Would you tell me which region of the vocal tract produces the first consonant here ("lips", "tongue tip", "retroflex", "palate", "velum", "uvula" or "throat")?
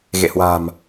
velum